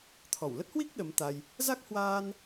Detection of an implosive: present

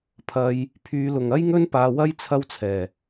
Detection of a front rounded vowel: present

